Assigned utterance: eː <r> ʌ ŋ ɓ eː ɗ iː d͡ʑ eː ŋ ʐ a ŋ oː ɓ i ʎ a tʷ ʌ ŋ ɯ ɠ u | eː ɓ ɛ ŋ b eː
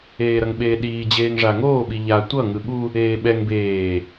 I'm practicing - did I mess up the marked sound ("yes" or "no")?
yes